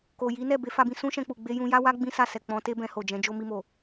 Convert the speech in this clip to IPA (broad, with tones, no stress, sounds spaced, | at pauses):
k o˨ j i˨˦ n ɛ˦˨ b e˨˦ f a˧ b ĩ˧ s ũ˦ ʃ ɛ̃˧ k͡p u˨ ɡ͡b e˧ j ũ˧ j a˦ w a˦ ɡ͡b ĩ˦ s a˦˨ s ɛ˨ k͡p ɔ̃˨˦ t e˦ b ɛ̃˧ h o˨ d͡ʒ ɛ̃˨˦ d͡ʒ o˦ m i˧ m o˨